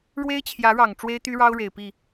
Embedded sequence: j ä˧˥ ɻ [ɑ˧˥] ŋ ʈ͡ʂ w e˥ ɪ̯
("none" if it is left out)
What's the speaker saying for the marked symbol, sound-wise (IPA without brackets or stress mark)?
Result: ɑ˨˩